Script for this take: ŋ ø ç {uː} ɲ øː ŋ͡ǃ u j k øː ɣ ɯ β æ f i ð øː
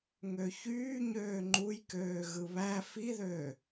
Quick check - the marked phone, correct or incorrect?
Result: incorrect